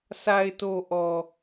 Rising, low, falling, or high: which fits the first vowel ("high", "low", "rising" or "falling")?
low